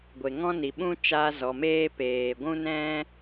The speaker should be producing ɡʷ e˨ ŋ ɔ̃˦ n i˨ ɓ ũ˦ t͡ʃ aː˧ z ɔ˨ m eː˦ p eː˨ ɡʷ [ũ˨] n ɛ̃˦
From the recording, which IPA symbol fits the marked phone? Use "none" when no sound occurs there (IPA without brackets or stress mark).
ũ˦